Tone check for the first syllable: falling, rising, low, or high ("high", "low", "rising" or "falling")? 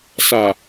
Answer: low